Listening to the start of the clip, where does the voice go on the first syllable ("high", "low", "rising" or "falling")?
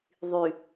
low